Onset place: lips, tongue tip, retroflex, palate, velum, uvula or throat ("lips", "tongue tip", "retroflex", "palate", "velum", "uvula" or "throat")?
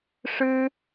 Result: retroflex